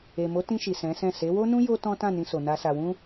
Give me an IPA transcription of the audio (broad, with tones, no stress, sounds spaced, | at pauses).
e˨ m o˨˦ t ĩ˧ ʃ i˨ s ɛ̃˨˦ s ɛ̃˦˨ s e˨˦ w o˦ n ũ˦ j o˦ t ɔ̃˦ t ã˦˨ n ĩ˧ s o˨ n a˨ s a˨ w ũ˧